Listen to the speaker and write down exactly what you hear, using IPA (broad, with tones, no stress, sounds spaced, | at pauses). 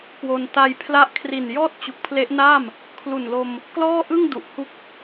k w o˧ n t a˧ j pʰ l a˦˥ ʔ kʰ r i˨˩ n j ɔː˥˩ t̚ t͡ɕ u˨˩ k̚ pʰ l e˦˥ ʔ n aː˥˩ m | kʰ l u˨˩ n l o˧ m | k l ɔː˥˩ ʔ ɯ˥˩ ŋ d u˨˩ ʔ h u˥˩ k̚